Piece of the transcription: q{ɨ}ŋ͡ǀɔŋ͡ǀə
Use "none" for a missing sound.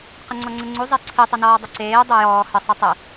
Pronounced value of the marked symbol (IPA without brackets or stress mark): ə